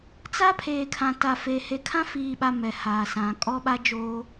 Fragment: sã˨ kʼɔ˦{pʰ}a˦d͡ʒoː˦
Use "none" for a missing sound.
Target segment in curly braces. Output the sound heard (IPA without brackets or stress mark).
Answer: ɓ